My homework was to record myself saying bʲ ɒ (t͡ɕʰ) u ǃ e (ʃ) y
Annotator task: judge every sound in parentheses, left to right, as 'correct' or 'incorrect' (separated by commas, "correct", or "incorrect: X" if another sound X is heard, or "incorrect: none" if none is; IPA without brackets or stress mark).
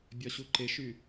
incorrect: ɕ, correct